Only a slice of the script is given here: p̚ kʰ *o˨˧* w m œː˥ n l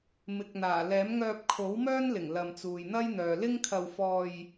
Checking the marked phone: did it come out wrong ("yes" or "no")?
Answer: yes